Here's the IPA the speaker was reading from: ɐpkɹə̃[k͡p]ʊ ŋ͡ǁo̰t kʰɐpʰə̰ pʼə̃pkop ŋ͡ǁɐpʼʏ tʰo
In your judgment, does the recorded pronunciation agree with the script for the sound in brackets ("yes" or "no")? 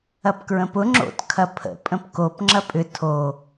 no